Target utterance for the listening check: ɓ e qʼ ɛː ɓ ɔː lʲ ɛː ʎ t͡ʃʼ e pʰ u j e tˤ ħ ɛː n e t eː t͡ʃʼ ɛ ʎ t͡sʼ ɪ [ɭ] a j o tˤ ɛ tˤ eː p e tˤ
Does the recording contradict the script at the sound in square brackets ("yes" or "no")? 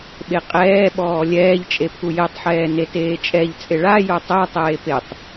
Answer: no